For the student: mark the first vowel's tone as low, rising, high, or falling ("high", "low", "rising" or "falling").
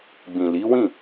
low